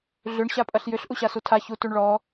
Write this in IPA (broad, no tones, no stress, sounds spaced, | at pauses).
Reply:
ɮ ʏ ɳ ɕ a pʼ ɐ ɬ j ʏ ɬ ʔ u ɕ a s u tʰ a ç u t u ɳ ɭ ɔ